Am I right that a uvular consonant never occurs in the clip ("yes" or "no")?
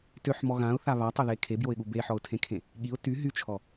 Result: yes